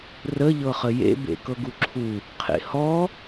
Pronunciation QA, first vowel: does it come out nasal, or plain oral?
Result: oral